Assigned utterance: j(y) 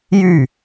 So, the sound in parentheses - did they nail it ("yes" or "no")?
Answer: yes